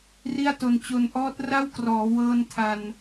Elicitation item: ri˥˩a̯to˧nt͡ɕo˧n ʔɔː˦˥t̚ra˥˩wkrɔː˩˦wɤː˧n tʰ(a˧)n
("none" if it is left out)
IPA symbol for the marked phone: a˧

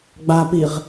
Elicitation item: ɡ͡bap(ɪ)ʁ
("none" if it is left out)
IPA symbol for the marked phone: i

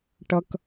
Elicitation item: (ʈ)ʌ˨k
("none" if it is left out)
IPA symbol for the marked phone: ʈ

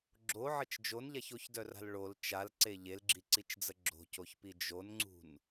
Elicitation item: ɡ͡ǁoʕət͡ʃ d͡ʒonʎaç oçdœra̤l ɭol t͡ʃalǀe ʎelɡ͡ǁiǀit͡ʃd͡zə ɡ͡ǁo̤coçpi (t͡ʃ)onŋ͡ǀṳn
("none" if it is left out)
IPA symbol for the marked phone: d͡ʒ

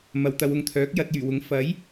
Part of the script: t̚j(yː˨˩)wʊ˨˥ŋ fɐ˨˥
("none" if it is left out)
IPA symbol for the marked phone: yː˨˩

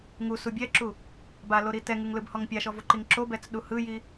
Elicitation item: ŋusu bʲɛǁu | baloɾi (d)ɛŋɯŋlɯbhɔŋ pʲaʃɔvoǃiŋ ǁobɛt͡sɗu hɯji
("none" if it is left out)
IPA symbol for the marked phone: t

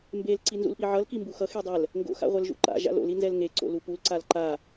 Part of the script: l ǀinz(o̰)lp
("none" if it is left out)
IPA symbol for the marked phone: ṵ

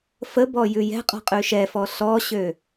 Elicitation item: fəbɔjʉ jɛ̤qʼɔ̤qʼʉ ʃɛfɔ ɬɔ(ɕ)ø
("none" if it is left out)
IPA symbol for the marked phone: ɕ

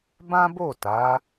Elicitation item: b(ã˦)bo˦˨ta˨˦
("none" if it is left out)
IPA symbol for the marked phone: ã˦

